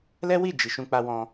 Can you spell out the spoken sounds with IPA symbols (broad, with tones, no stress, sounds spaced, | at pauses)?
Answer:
l ɛ˦ w i˦˨ d͡ʒ i˨ ʃ ũ˧ k͡p a˧ w ɔ̃˧